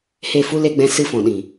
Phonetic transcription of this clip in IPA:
h e˦˨ f u˦ l e˧ ɡ͡b ɛ̃˧ s ɨ˧ f ɔ̃˨ ɗ ĩ˨

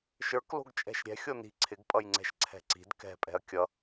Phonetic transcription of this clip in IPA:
ʃ ə˞ k l o̤ ɡ t͡ʃʼ ɛ̤ ʃ ɾʲ ɛ̤ xʲ o n i̤ ǀʰ ɪ ɡ pʼ ʌ j ŋ͡ǀ ɛ̤ ʃ ǀʰ ɛ̤ ǀ i̤ d k ɛ̤ pʼ ɛ̤ ɐ̯ kʲ ʌ

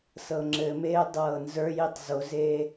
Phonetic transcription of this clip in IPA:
s ɤ ŋ͡ǁ ɘ m eː dˤ ɤː n z ə˞ j i tˤ z o z eː

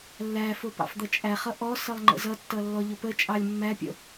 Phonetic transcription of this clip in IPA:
lː æ f ʊ p ɑ̰ f d̪ ʌ t͡ʃʼ æ χ ʌ ʔ ɔ s ʌ lˠ ŋ͡ǃ ə̰ z ʌ tː ʌ lː ɔ ʎ ʊ p ə t͡ʃʼ ɑ lʲ mː æ pʲ ə̰

